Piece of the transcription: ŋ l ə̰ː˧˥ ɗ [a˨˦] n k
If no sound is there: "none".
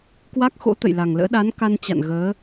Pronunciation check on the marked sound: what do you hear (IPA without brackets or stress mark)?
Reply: a˨˦